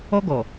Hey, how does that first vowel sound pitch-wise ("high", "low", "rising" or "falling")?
high